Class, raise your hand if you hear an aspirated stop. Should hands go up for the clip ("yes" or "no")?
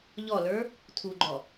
yes